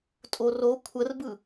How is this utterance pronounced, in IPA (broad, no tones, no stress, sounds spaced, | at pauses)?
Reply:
tʼ o r o kʷʰ ə r b ɯ